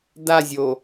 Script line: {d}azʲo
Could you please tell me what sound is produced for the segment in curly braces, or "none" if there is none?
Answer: d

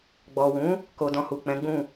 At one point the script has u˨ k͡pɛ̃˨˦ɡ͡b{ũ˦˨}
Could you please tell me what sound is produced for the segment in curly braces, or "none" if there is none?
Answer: ũ˦˨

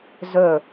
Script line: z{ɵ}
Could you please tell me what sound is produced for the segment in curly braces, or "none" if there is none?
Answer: ɵ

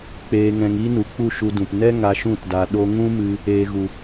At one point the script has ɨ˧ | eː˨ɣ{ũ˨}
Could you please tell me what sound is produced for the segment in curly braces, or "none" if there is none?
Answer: u˨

